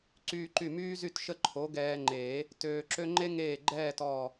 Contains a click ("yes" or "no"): yes